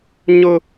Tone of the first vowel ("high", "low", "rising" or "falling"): high